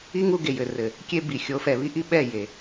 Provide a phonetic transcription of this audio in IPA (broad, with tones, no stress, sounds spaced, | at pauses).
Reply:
i˦ ŋ u˦ ɡ e˨ j ɘ˨ r ɘ˨ | kʲ e˦ b i˨ xʲ o˨˦ f ɛ˨ β i˦ ʔ i˦ ɓ ɛ˦˨ j e˨